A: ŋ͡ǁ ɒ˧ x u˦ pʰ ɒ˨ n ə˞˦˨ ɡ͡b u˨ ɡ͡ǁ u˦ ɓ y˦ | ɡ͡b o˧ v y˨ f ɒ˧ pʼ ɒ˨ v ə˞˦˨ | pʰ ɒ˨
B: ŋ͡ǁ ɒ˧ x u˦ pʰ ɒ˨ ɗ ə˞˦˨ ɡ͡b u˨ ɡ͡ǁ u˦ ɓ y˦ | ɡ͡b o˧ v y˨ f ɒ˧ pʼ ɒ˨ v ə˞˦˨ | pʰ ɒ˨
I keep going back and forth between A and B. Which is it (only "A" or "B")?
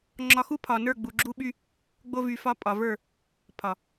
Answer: A